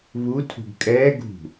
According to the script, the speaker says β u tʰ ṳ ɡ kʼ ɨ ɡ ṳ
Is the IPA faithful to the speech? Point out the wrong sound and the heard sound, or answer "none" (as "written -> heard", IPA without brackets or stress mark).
ɨ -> ɛ